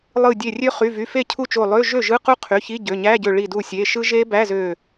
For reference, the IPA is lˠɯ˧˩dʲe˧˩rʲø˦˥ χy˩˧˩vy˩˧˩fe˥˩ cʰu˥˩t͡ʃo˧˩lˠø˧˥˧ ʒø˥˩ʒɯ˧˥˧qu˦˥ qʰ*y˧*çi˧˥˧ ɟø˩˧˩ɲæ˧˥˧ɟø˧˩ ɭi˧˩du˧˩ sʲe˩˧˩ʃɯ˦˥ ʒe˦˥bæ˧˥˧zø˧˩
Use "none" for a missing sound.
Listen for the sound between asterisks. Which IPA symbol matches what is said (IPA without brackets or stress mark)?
y˩˧˩